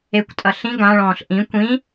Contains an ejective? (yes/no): yes